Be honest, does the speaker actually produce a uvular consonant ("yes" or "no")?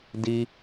no